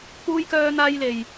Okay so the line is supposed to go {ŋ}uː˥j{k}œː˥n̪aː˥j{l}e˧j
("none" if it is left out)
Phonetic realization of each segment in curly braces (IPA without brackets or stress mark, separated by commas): k, k, l